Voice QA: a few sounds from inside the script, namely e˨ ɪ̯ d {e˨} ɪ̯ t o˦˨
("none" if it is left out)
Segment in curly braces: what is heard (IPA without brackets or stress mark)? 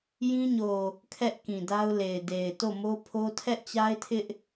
e˨